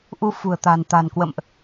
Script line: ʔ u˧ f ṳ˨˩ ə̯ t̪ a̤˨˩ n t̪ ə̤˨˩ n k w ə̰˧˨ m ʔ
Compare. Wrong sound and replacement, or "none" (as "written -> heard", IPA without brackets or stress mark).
ə̤˨˩ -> a̤˨˩